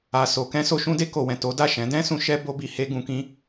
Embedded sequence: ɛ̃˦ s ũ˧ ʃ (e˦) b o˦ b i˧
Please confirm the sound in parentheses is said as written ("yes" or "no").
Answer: no